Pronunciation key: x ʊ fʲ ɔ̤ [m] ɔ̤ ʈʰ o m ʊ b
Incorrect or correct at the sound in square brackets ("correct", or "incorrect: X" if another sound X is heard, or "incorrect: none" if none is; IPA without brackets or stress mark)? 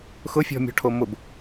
incorrect: mʲ